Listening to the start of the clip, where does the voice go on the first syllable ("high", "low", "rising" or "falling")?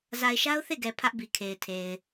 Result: low